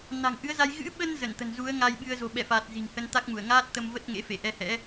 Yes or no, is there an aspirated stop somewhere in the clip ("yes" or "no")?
no